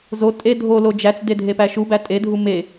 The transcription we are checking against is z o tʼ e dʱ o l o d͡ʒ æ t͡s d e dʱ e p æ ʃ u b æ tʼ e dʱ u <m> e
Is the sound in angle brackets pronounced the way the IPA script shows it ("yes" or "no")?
yes